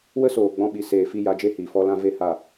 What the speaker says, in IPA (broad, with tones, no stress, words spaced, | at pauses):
wə˦soː˨ɡ͡bɔ̃˧ɓi˨ seː˨fi˧ ja˧d͡ʒe˦hiː˨ fɔ˧lã˧ ve˦ha˦˨